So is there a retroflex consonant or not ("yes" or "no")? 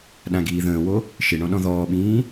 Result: yes